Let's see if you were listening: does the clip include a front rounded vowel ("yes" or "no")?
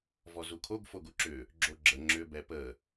yes